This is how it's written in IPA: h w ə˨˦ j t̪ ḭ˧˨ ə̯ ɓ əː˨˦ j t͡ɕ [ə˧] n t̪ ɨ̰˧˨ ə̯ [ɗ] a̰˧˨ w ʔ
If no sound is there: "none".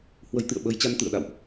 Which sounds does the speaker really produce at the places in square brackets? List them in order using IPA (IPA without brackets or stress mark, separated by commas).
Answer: a˧, ɗ